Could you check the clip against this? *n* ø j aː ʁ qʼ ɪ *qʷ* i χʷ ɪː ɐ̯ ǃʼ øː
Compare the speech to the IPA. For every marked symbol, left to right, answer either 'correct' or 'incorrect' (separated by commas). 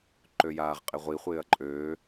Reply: incorrect, incorrect